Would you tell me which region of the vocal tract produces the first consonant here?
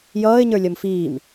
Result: palate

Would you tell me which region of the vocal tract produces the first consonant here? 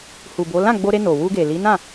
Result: throat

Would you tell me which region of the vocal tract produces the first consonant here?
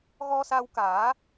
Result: velum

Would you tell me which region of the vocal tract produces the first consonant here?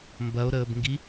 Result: lips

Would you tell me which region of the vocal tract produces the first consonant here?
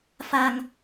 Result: lips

